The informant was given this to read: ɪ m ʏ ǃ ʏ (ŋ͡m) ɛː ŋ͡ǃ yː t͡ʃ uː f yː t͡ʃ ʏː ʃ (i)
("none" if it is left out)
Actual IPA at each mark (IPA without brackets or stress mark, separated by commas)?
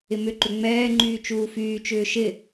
ŋ͡m, ɪ